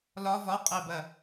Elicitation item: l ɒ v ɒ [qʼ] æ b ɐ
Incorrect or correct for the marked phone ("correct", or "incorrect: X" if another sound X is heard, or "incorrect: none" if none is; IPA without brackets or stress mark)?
correct